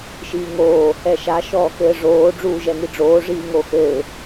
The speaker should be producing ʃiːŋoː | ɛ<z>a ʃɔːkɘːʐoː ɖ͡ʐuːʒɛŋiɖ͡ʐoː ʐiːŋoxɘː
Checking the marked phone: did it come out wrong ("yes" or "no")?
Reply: yes